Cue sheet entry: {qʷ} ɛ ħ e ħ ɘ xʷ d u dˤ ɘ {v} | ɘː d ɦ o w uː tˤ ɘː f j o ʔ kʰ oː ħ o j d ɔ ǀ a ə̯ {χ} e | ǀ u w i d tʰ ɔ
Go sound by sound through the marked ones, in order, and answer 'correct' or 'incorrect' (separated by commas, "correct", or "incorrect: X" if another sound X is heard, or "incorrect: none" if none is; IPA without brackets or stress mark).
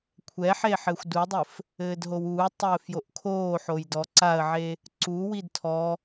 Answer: incorrect: kʷʰ, incorrect: f, incorrect: ʕ